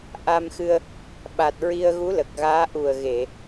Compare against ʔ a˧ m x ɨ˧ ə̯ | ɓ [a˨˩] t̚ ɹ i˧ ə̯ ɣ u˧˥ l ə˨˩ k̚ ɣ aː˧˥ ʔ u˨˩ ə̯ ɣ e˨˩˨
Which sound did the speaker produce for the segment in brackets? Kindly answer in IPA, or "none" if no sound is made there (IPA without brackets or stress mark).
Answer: a˨˩